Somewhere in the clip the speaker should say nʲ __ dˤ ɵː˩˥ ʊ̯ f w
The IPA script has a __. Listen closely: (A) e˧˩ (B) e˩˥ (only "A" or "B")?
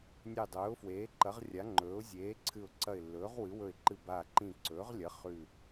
A